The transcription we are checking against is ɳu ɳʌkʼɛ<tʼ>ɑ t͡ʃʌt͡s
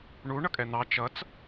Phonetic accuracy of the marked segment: incorrect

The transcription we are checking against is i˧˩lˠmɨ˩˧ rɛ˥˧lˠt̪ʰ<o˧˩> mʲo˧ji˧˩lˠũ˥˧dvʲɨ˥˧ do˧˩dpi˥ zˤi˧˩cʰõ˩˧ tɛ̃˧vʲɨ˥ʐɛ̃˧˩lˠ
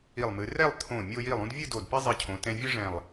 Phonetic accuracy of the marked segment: incorrect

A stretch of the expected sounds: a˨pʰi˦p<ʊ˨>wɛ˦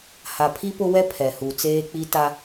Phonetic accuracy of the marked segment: incorrect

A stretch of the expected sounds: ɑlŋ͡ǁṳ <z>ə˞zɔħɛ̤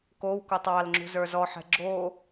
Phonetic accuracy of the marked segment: correct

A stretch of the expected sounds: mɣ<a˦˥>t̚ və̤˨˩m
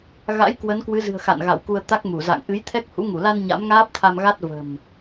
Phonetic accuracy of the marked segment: correct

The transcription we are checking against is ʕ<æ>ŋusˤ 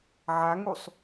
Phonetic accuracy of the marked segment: incorrect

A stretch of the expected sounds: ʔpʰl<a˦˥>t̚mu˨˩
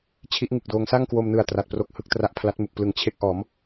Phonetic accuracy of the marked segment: correct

